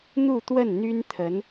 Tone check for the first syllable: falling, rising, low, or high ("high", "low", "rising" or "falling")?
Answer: falling